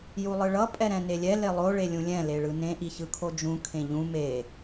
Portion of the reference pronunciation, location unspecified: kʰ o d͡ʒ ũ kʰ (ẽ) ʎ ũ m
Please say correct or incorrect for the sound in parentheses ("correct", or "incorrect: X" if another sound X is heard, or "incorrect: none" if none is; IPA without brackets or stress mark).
correct